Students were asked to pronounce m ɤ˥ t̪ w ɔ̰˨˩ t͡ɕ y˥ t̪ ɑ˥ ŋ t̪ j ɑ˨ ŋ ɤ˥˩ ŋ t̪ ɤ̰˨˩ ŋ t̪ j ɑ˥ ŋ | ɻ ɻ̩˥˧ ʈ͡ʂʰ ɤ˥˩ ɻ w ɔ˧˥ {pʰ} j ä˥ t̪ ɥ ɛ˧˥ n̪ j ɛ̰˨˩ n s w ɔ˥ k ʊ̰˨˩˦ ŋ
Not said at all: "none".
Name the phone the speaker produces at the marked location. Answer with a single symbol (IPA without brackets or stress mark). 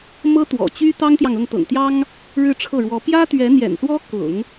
p